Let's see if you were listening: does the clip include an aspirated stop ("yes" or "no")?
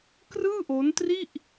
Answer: no